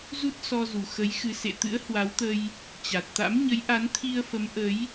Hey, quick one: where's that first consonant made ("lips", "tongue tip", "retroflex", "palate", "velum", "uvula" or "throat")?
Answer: tongue tip